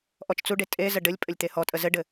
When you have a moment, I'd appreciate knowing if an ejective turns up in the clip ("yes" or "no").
yes